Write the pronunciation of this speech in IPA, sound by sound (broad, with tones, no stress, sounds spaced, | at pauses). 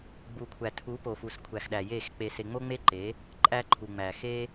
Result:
ɡ͡b u˨ kʷʰ æ˨ tʰ u˨˦ p o˨ f u˨ s kʷʰ æ˨ x ɗ æ˨ j e˦˨ x k͡p e˧ s e˧ ŋ͡m o˦ ŋ͡m e˦ ǃ e˨˦ | ǃʼ æ˦ ǃʰ u˨ ŋ͡m æ˨ x e˦